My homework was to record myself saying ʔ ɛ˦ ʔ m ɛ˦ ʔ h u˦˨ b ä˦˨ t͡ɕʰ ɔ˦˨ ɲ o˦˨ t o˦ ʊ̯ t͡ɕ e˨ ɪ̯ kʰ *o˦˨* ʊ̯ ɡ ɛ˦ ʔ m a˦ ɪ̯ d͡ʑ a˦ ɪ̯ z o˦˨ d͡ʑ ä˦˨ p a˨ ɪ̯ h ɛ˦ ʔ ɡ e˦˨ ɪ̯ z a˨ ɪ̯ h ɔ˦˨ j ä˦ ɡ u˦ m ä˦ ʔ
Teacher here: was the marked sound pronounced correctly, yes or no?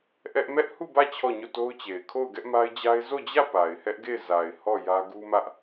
yes